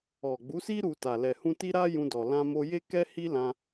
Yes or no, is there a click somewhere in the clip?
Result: no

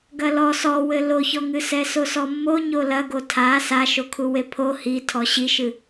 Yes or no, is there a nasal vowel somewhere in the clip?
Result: no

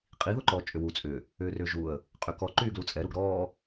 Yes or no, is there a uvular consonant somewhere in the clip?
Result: yes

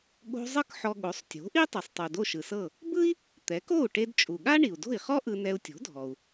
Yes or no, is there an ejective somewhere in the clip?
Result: yes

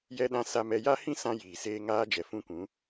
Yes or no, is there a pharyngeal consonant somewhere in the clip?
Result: no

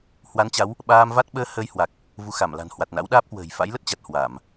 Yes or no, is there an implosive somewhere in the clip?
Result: yes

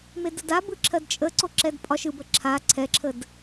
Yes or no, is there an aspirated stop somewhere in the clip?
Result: yes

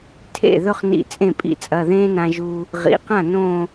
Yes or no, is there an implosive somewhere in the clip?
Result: no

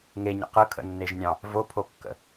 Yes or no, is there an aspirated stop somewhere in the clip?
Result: yes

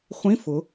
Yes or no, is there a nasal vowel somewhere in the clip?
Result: yes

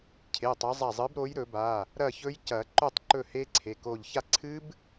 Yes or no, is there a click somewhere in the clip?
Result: yes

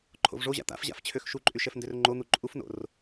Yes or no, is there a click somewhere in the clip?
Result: yes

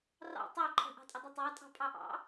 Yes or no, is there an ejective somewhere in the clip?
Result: yes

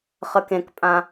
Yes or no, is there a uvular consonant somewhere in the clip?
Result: yes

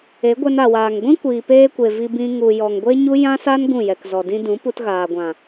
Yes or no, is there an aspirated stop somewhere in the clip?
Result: no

